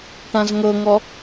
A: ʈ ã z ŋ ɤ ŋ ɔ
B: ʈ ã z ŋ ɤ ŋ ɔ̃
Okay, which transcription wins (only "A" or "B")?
A